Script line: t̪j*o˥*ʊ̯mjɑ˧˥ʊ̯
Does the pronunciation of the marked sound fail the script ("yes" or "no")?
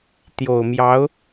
yes